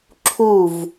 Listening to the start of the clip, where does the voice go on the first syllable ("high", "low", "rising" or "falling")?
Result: falling